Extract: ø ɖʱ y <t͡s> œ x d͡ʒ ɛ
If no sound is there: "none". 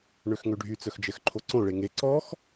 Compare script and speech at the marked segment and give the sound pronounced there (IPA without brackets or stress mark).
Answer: t͡s